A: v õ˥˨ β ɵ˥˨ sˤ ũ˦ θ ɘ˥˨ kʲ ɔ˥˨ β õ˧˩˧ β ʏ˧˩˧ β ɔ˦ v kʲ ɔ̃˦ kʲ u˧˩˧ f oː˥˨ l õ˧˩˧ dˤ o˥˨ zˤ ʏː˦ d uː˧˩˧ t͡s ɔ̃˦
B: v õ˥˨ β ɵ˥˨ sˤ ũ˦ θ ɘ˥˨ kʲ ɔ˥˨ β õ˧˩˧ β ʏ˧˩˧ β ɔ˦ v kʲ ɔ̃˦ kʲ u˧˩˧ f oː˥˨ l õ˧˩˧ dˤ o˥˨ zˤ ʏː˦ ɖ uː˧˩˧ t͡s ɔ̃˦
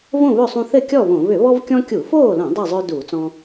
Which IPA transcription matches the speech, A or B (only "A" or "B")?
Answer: A